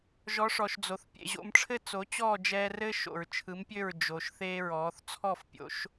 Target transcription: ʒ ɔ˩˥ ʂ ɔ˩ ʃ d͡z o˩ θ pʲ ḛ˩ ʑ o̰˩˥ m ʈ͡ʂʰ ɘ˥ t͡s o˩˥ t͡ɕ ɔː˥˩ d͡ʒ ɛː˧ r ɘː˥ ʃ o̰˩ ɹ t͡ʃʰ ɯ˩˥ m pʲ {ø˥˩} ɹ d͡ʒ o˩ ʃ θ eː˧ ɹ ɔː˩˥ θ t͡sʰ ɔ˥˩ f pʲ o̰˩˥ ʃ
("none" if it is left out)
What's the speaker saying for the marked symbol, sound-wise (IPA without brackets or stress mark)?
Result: ø˥˩